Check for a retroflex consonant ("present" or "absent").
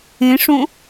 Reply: present